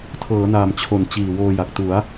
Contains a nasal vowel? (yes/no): no